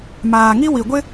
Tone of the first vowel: low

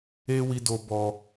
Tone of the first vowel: high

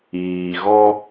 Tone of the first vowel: low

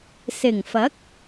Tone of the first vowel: low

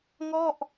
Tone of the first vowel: falling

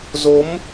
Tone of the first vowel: rising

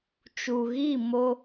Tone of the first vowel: low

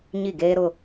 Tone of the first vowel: falling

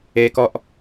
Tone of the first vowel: high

